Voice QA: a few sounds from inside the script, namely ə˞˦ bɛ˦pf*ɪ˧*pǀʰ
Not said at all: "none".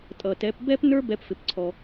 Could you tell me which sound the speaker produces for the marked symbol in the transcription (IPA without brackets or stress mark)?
ɪ˧